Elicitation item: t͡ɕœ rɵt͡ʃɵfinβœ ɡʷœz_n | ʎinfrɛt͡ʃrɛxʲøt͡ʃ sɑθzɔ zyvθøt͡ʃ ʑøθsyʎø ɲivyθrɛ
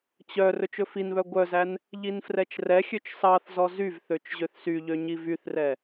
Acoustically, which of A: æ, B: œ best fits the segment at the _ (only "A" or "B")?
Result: A